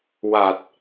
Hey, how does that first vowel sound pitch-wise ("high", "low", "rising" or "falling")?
low